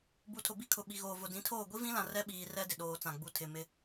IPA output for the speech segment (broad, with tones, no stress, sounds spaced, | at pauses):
b u˨ tʰ ʊ˨ b i˦ kʰ ʊ˨ ɓ i˨ ɣ oː˨ v ʊ˨ d ĩ˨˦ tʰ oː˦˨ ɡʷ i˦ v ĩ˦ l ã˨ r ɛ˦ ɓ iː˨ r ɛ˦ d ɪ˨ ɗ oː˨ t͡s ã˨ ɡ͡b u˨ tʰ ɪ˨ m ɪ˦